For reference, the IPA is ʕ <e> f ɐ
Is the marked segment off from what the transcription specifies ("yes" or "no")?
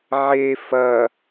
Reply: no